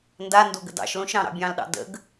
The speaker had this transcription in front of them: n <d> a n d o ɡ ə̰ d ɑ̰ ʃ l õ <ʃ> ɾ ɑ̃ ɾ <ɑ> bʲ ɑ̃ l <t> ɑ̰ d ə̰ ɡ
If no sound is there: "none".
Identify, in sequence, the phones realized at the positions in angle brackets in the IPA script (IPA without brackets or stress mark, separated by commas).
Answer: d, ʃ, ɑ̰, ɗ